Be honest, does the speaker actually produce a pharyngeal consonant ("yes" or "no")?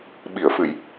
no